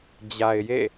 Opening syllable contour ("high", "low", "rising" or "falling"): low